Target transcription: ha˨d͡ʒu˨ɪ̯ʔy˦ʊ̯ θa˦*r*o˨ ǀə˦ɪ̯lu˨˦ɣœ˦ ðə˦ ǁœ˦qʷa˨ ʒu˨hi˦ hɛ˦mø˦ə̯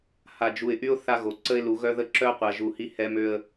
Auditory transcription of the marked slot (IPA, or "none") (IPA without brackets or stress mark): ɣ